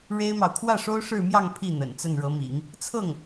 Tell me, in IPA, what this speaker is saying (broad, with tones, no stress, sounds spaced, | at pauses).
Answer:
ɻ e˥ ɪ̯ m ɑ˨ ʊ̯ kʰ w ä˥˩ ʂ o˥ ʊ̯ ʂ ɻ̩˥˧ m j ɑ˥˧ ŋ pʰ i˥˩ n̪ ə̰˨˩ n t͡s ə˥˩ n ɻ ɤ˧˥ m ḭ˨˩˦ ŋ | t͡sʰ ɤ˥˩ ŋ